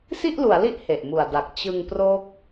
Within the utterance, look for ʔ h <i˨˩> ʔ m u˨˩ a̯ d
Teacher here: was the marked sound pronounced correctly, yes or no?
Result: no